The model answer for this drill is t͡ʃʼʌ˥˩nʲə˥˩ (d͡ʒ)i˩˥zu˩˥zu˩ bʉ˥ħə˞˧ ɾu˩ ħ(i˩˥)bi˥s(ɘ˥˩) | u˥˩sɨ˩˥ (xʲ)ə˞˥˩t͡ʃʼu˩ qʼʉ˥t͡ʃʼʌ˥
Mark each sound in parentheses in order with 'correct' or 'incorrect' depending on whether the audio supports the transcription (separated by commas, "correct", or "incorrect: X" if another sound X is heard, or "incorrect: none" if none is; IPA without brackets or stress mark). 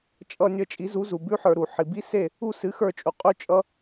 incorrect: t͡ʃʼ, incorrect: i˩, incorrect: e˥˩, incorrect: x